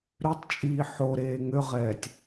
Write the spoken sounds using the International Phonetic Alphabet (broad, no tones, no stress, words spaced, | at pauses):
ɾøtˤt͡ʃʼiː ħoɾeː ŋøʁɛːtʲ